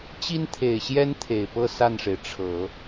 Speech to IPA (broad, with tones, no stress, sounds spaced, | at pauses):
t͡ɕ i˥ n t̪ʰ e˨˩ ɪ̯ ɕ j ɛ˥ n t̪ʰ e˨˩ ɪ̯ p ɤ˥˧ s a˥˩ n ʂ e˩ ɪ̯ ʈ͡ʂʰ ɤ˨˩˦